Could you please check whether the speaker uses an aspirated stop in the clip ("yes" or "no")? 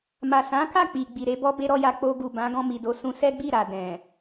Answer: no